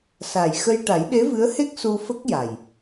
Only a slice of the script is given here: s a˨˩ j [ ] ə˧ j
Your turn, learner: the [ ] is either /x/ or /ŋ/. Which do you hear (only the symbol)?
x